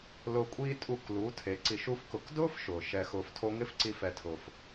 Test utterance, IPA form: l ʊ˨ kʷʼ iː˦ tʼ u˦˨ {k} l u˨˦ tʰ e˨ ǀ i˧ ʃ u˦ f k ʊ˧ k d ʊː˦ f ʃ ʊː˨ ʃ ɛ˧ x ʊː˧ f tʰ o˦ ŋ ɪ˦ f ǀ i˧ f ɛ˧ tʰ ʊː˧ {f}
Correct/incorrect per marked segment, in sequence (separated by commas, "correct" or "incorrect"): correct, correct